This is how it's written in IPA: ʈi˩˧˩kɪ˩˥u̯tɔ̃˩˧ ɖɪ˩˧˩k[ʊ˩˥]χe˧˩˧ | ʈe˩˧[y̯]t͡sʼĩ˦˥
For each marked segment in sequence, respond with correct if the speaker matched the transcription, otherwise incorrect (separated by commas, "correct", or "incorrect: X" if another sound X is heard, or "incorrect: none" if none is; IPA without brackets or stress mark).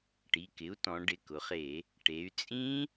incorrect: ʊ˩˧, correct